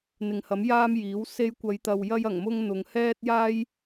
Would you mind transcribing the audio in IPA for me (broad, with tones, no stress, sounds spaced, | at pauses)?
n̪ ɪ˨ ŋ h ɐ˨˥ m j aː˥ m j iː˨˥ w s e˧ j kʷ ɐ˨˧ j t̪ ɐ˨ w j ɐ˧ j ɐ˨˩ ŋ m ʊ˧ ŋ n̪ ʊ˨˧ ŋ h ɛː˥ t̚ j aː˥ j